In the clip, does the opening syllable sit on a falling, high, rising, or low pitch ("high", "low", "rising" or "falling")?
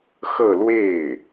falling